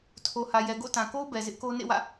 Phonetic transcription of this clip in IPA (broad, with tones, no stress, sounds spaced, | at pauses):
tʰ o˨ h ä˨ j ɛ˨ ɡ o̰˦˨ t ã˨ k o˦ ʊ̯ b ɛ˨ z ɪ˦ ʔ k o˦ n ḛ˦˨ w ä̰˦˨